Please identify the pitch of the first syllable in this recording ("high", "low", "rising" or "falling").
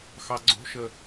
low